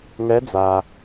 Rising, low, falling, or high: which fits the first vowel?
rising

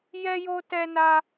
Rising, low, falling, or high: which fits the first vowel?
high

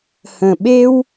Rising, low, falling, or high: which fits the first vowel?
low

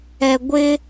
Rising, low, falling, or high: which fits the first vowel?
low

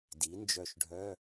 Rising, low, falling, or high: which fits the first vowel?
rising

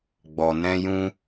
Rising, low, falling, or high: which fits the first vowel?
low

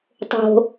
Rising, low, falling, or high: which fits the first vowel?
low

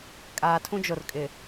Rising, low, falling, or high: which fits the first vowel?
low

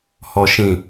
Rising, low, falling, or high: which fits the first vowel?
low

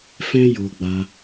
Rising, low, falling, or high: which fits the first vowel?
high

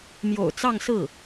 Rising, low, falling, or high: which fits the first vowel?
low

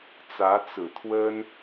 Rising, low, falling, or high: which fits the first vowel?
rising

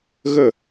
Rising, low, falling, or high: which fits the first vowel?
falling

